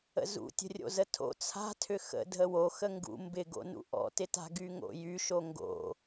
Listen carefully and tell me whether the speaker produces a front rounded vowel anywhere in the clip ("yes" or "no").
yes